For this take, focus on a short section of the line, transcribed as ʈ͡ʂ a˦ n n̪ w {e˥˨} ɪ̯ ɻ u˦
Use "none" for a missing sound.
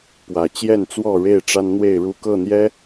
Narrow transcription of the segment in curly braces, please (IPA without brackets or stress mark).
e˥˨